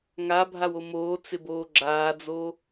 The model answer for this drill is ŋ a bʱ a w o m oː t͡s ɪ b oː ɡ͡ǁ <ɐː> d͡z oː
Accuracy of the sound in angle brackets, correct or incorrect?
incorrect